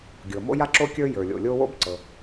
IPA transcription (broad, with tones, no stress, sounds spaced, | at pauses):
ɡʲ ɤ˩ m o̰˥ j a˥ ǁ o˥ kʲ ə˞˥ j ə˞˩ lʲ o̰˩ lʲ o˥ w o̰˥ b ǀ ɤ˩